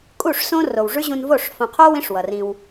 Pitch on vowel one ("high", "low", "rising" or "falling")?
falling